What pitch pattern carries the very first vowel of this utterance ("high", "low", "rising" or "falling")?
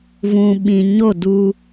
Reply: low